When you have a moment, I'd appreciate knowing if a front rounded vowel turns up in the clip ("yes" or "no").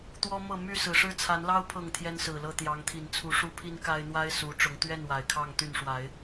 yes